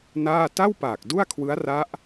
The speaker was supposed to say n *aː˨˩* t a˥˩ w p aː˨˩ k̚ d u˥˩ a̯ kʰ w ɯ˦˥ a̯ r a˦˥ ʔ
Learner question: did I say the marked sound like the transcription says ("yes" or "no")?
no